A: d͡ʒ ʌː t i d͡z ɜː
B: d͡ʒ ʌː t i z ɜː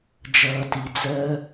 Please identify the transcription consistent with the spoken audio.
A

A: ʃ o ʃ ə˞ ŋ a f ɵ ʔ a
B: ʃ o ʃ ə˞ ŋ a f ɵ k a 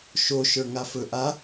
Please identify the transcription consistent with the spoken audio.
A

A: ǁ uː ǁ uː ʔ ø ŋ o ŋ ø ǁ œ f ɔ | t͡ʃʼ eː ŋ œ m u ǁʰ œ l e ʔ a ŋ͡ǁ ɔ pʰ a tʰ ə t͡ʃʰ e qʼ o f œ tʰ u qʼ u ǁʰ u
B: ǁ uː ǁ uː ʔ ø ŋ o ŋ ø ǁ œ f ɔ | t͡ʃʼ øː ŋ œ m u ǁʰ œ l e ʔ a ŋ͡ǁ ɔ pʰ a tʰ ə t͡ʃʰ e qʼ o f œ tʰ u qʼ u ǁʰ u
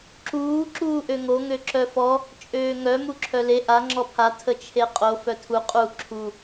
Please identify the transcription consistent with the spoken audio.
B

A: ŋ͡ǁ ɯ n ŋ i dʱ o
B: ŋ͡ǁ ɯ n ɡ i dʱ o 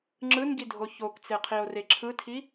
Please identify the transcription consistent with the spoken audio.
B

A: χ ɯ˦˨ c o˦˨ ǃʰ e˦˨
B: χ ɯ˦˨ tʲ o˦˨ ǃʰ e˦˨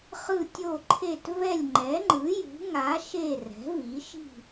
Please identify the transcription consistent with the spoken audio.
B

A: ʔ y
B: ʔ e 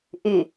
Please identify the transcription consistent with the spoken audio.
A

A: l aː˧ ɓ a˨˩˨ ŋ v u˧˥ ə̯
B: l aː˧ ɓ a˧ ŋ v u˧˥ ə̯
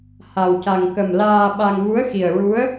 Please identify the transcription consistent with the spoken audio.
B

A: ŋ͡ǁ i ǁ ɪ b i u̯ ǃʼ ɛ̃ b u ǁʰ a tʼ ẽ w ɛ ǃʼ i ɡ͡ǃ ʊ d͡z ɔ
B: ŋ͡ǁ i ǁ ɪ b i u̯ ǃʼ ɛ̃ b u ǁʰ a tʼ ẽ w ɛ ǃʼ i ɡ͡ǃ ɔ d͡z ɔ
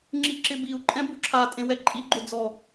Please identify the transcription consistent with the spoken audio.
A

